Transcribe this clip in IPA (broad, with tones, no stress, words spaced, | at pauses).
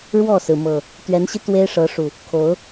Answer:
ɻwɔ˥˨sɹ̩˩mɤ˨˩ | t̪ɥɛ˨˦nɕi˧ t̪we˦ɪ̯ʂɤ˨˦ʂu˨˩ | kʰo˨˦ʊ̯